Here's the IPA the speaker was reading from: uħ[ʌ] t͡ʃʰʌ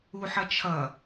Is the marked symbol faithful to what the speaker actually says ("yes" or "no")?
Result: yes